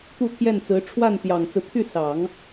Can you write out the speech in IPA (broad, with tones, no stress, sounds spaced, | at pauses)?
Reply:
t̪ u˥˧ t̪ʰ j ɛ˥˩ n t͡s ɹ̩˧˥ ʈ͡ʂʰ w a˥˩ n t̪ j ɑ˨˩ ŋ t͡s ɹ̩˦ t̪ʰ y˥˩ s ɑ˨˩˦ ŋ